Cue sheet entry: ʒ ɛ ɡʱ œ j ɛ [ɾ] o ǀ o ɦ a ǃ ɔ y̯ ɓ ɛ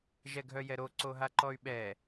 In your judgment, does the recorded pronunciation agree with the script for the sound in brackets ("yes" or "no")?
yes